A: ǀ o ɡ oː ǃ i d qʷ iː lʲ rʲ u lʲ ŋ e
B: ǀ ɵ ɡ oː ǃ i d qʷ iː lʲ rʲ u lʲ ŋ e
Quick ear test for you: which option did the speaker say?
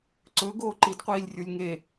B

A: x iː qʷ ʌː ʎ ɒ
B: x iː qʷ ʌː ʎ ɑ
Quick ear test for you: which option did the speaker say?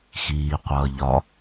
A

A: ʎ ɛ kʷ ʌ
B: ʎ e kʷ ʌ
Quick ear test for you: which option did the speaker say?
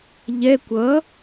A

